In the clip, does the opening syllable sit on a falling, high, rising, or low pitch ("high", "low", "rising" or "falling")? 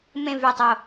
falling